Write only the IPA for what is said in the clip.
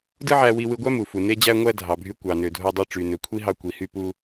dɯ˥ʕæ˧wi˧wɯ˧ ɡʷæ˥mu˩fu˩ ne˧d͡ʑæ˧ŋʷæ˧ dʱɑ˩bʱy˧ kʷɑ˩nø˩dʱo˧dˤe˧ ʈ͡ʂy˩nø˩kʷʰi˥ɦɑ˧ kʷi˩hy˧pu˧

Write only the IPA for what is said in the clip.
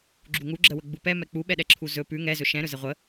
ɡ͡ǁuŋuɡ͡ǁəwə ɡ͡bupɛmɛ k͡puɓɛɗɛǁʰu zɵ pʉ ŋɛzɵ ʃɛ̃ɾɵzɛ ʁʷə

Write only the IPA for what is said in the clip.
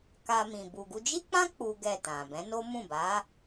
ka˧ mĩ˨ bu˨ɡu˧d͡ʒi˦k͡pã˦ k͡pu˦ɡɛ˦˨tã˨ bɛ̃˨˦no˦mũ˦˨ ba˨˦

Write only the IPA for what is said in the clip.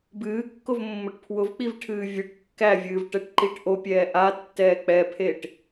bɨːkːʊvmːʊʈ pʰwʊvk͡pivʈʰɨː vʲɨʈ kːævʲɨːvʈɛʈǃiʈ ʔopʲɛː ʔatːɛː k͡pɛpʰeʈ

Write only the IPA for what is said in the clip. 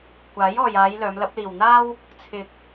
kʷaː˨˥jɔː˨jaː˨˧j lœː˨˧mlɐ˨˥p̚liː˨wn̪aː˥w | t͡sʰɪ˨k̚

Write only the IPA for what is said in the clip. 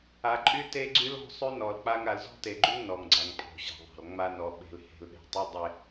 a˨ǃʼy˦ te˦ɡ͡ǀy˦lɔ̤˦sˤy˦ nɔ˨lk͡pa˦ŋ a˨lzɔ̤˦te˨ɡ͡ǃy˦ŋ nɔ˨ŋɡ͡ǀa˨ŋpʼɔ̤˨ ɕa̤˨ðˤa̤˨l ŋ͡ma˦nɔ˨ ɓe̤˨lhe̤˨lɗe̤˨tˤy˦ dˤe˦

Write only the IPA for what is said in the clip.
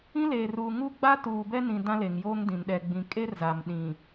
ĩ˦leː˨ ruː˨ŋu˦ ɡ͡ba˦ tuː˨bɛ˦nĩ˨ dã˦le˨ŋjoː˦ŋdĩ˨n ɗɛ˨ ɡ͡bĩ˨kʼe˦rza˨m ɗĩ˨

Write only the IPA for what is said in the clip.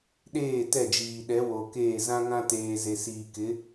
ɗeː˦˨tɛ˦˨d͡ʒiː˨ ɗɛ˨˦wo˨keː˦˨ zã˦ŋã˦ teː˨ze˨siː˨kɪ˨˦

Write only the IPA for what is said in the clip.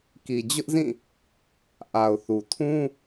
ki˨d͡ʑʊ˦ʔzĩ˦˨ | ʔa˨ʊ̯ θu˨ tʰũ˦

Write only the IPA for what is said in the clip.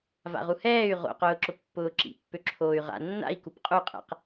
va̰ʁuhɛːy̯ ʁo̰qʊːǁʊ pːʊːǁḭ pːøǁʰoːy̯ʁa̰ nːa̰i̯kup qʼuqʼɛ̰q

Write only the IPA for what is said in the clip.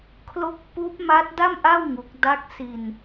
kʰlo˥˩k̚ puː˦˥p̚ma˦˥t̚da˥˩mʔa˥˩w ŋu˦˥k̚ da˦˥k̚ si˧n

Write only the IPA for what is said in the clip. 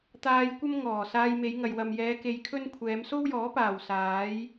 t̪aː˧jkʷɐ˥m ŋɔː˨˩ saː˧jme˨˧jŋɐ˨j wɐ˨mjɛː˨˧ ke˧jkʰɵ˥nkʷʰɛː˨˧m so˥wjɔː˨˥paː˨˩w saː˨˥j

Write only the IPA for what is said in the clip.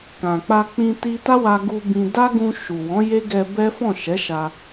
kã˨k͡pa˧k͡pĩ˧ ti˧ta˦wa˧ ɡu˧ bĩ˧ da˦ɡũ˧ ʃu˨wɔ̃˨˦ je˦ɡɛ˧ bɛ˦ fɔ̃˦˨ʃɛ˨˦ ʃa˧

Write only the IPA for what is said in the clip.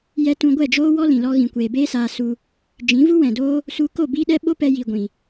jɛ˧tũ˧ɡʷɛ˦˨d͡ʒoː˦ wɔ˦lĩ˨lɔ˧ ɣĩ˨kʷeː˨beː˦saː˧ su˧ | d͡ʒĩ˨˦vu˦ wɛ̃˨doː˦ | su˧ko˦˨ biː˦ɗɛ˦ ɓo˦pɛ˧ji˨ ɡʷĩ˨

